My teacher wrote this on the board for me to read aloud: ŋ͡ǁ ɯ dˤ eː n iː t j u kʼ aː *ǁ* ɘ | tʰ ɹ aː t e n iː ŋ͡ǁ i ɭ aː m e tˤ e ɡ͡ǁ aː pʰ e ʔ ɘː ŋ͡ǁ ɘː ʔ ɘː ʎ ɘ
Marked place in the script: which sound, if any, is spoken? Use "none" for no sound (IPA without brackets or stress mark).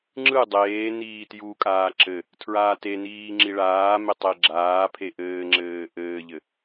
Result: ǁ